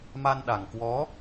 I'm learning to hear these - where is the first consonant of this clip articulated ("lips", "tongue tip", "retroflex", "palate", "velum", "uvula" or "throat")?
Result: lips